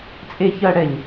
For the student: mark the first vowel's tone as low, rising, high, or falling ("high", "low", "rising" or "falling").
low